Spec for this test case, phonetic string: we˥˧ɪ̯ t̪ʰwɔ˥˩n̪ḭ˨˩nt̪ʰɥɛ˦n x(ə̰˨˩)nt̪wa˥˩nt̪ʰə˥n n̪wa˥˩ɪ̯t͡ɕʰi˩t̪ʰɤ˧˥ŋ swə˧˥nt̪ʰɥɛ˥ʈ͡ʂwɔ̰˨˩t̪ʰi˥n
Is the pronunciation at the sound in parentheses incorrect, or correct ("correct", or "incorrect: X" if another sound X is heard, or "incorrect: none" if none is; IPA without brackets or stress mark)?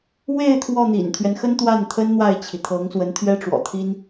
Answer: incorrect: ə˥